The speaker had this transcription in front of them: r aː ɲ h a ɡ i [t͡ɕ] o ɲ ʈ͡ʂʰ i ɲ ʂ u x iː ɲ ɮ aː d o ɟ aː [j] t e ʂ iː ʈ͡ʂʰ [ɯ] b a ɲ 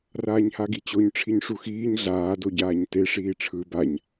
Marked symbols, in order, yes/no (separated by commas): yes, no, yes